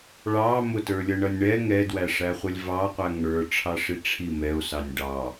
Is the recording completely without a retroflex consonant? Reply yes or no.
no